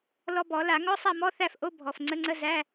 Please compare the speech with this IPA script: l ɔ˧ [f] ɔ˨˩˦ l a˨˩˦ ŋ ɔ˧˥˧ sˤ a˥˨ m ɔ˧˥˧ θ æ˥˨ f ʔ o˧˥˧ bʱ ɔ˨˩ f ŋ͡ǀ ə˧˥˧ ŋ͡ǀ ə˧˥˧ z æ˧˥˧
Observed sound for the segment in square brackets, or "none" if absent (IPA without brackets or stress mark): b